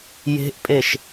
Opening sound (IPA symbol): j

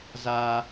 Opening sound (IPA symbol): z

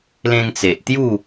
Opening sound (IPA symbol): l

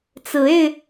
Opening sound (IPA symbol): t͡s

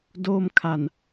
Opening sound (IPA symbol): d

